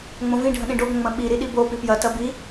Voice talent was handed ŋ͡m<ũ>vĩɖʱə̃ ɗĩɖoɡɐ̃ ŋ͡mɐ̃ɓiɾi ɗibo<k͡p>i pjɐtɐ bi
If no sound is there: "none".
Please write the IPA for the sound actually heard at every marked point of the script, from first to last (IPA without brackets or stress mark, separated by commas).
õ, p